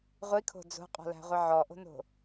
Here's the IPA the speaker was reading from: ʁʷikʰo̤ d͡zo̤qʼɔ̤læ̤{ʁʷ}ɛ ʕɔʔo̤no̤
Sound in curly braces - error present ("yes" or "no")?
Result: no